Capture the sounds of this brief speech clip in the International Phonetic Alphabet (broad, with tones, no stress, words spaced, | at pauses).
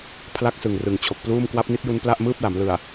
pʰla˥˩k̚sɯ˨˩ŋ rɯ˨˩ŋ t͡ɕʰo˨˩k̚pluː˥˩m kwa˦˥p̚ni˦˥t̚ju˦˥n pla˥˩ʔmɯː˥˩p̚la˩˦m lɯ˨˩a̯